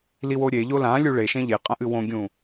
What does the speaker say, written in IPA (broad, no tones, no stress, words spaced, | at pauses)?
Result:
liwoɾʲeʎo lãlʲu ɭeʃẽ ʎeqʼɐ̃ʔɨ wõɡʲũ